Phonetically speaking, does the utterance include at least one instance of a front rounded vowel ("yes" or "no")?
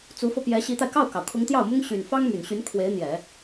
yes